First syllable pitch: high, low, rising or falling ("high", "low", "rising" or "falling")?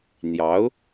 rising